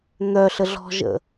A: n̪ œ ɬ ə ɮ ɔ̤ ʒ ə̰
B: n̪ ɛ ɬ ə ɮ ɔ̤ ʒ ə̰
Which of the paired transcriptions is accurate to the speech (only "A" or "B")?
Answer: A